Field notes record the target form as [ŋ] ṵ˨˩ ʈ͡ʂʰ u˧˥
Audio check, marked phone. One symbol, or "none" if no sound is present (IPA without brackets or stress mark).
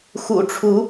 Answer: x